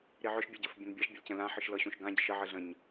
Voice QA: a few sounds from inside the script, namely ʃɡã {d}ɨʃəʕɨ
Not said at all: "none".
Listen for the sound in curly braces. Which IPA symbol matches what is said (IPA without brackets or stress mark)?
ɟ